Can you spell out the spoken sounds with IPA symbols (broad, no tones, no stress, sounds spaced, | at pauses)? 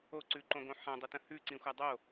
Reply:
o ǀ ʉ ǃ õ ɡ õ ħ ã dˤ ə t ə̃ h ʉ ǀ ĩ xʷ a dˤ o